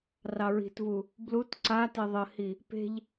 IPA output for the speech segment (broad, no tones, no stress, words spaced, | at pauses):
rɑɹi̤tvu | blut ǀate ðˤəhi | pe̤ʎ